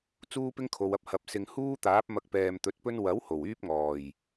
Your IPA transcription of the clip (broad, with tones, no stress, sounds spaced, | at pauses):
t͡s uː˥ p ɪ˥ ŋ kʰ o˨ w ɐ˥ p̚ h ɐ˨ p̚ s ɪ˨ ŋ h uː˥ t̪ aː˨˥ p̚ m ɐ˧ k̚ p ɛː˨ m t̪ ɵ˨˥ t̚ p ɵ˥ n w ɐ˨˥ w h o˨˩ w yː˥ p̚ ŋ ɔː˨˩ j